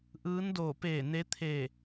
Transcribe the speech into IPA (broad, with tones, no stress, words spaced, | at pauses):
ʔɯː˧˥ndoː˧˩ peː˧˩ ne˧˥t̪ʰeː˧˩